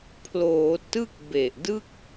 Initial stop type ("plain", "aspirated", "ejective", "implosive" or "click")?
aspirated